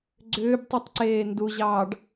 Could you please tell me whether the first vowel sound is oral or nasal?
oral